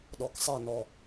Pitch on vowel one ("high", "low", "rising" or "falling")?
low